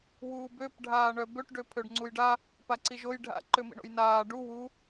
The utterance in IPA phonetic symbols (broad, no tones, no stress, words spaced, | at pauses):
wuːbøp ɖʱaːɳœbøʈ ɖøpʰøɖŋ͡ǀujɖa | paǀiʒoj ɖʱa̰ ǃømḭɳo̰jnaː ɖu wu